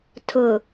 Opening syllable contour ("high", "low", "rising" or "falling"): low